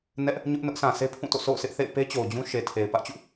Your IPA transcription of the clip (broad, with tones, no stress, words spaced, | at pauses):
nɛ˦ʔ | ɲʊ˦ʔ nʊ˦ʔsʰã˨ se˦pʰũ˦˨to̰˦˨ so̰˦˨ʊ̯sɪ˦ʔθḛ˦˨ɪ̯ pe˦t͡ɕo˨ʊ̯ d͡ʑũ˦ʃe˨tʰe˨ɪ̯ pä˦ʔt͡ɕṵ˦˨